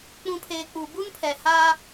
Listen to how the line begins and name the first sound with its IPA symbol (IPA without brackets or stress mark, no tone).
k͡p